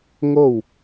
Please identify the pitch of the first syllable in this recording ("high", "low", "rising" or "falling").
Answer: falling